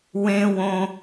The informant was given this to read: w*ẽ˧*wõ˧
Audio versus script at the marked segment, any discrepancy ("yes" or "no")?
no